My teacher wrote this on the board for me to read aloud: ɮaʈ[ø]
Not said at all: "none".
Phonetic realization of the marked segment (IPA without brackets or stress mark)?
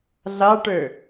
ø